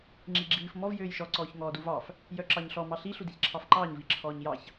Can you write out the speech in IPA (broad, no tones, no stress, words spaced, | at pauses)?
ŋ͡ǁiɡ͡ǁiːf mɔv jøːjʃɔ ǀɔːçŋɔːduvɑf | jœǁɑɲɬɔ mɑɬi ɬudiçǁʰɑfǃɑːɲ viǁʰɔːɲjɑç